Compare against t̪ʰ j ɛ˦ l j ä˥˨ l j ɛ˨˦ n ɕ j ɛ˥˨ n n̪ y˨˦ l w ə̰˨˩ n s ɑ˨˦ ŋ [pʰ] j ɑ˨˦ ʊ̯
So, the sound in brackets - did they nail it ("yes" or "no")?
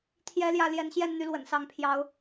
yes